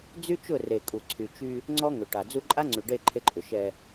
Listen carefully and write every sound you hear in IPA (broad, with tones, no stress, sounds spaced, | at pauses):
d͡z y˦ t͡ʃ ʊ˦˨ r e˨ kʼ u˨ ǀʰ y˨ t͡ʃ y˦ | ŋ͡ǀ ɔ˦ ŋ ʏ˨ ʈ a˨ d͡z u˦ ǃʼ a˦ ŋ͡ǀ y˨ ɖ e˦˨ ǃʰ e˦ ǃʼ ʏ˨ ʃ ɛ˨